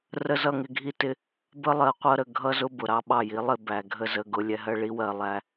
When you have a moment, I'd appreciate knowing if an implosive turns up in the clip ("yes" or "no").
yes